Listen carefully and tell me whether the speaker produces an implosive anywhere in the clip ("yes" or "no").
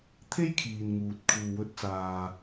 no